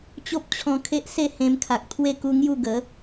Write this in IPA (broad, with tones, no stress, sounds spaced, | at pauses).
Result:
t͡ɕ o˦ p̚ t͡ɕʰ ɔ̃˧ kʰ e˦ ʔ s e˥˧ h ẽ˧ m kʰ a˨ k̚ t̪ʰ w e˥˧ k u˦ ŋ j u˥˧ ɡ ə˨˦